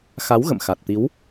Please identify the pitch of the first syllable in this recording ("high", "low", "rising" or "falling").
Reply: rising